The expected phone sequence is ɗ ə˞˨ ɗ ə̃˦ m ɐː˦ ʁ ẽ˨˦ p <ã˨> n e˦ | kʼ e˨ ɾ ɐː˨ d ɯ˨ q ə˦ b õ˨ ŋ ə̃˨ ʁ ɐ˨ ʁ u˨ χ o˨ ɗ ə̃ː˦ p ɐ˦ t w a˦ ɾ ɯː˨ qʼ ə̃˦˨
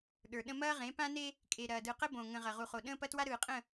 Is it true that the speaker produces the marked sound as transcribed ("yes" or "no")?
no